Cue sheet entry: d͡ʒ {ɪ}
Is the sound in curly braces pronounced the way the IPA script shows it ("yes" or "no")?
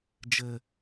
no